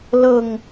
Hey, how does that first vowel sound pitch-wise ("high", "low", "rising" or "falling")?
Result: low